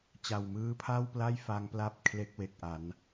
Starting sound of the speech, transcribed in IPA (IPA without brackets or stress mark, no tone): t͡ɕ